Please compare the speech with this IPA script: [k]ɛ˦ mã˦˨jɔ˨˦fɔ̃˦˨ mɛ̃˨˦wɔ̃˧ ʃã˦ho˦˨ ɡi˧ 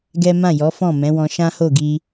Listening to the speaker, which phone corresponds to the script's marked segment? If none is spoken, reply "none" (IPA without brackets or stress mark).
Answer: ɡ